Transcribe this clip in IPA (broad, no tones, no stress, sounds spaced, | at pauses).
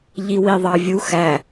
ʎ i w i ðˤ ɑ vʲ u x æ